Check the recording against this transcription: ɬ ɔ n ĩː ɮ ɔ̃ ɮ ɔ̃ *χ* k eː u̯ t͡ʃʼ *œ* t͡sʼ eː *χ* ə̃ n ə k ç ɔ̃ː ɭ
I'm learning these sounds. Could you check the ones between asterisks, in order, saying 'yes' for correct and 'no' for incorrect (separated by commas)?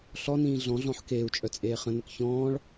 no, yes, yes